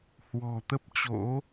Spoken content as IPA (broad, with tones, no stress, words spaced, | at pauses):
hwɔ̤˨˩t̪ə˦˥p̚t͡ɕo̰˧˥